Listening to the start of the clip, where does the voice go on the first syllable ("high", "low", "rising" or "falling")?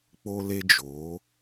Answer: high